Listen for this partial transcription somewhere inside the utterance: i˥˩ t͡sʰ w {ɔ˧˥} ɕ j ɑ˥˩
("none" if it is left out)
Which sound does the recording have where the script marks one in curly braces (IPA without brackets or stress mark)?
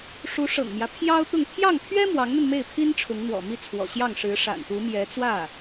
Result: ɔ̰˨˩